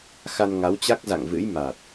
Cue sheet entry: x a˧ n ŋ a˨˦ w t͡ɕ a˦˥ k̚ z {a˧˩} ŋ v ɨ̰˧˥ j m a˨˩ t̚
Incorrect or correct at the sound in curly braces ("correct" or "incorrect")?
incorrect